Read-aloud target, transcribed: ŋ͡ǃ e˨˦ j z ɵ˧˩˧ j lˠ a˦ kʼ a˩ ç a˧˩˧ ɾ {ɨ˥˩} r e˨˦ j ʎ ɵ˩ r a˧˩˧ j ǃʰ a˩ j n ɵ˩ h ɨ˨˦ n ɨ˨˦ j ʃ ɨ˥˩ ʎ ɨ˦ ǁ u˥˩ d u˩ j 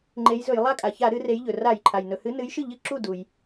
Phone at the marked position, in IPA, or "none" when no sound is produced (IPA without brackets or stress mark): ɨ˨˦